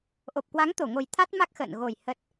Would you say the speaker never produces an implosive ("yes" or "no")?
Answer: yes